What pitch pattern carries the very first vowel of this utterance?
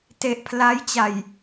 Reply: low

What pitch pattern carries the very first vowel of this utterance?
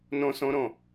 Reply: high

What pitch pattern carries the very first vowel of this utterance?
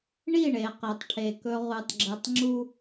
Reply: falling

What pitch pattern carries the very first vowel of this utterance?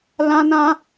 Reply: high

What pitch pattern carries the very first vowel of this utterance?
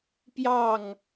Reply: falling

